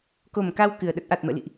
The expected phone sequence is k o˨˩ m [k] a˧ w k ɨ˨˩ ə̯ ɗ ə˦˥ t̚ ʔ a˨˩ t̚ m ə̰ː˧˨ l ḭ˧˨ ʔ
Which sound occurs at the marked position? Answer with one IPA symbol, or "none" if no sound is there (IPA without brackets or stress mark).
k